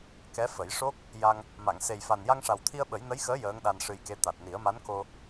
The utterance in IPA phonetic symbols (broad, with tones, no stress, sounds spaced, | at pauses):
k ɛ˧˥ f ə˨˩˦ j ʂ o˦˥ k̚ | j a˧ ŋ | m a˨˩˨ ŋ s e˨˩ j f a˨˩ n j a˧ ŋ ʂ a˨˩ w t̪ʰ i˧ ə̯ ɓ ə˨˩˦ j n ə˧˥ j x əː˧˥ j əː˧˥ ŋ ɗ a˧ n ʂ ɨ˧ j k e˧˥ t̪ a˨˩ t̚ n i˨˩˦ ə̯ m a˧˥ n k o˧